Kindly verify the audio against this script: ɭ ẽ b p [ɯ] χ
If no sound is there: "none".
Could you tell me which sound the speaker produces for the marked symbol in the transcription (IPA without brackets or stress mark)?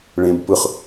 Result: ɯ